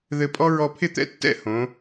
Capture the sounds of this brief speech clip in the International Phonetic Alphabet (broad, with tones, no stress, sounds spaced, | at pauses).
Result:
ð ɘ˧ pʼ ɔ˥ ɹ ɔ˧ pʰ ɪ˥˧ t̪ ɛ̰˥ tː ɛ̰˥˧ h õ˩˧